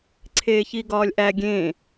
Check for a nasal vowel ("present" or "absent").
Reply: present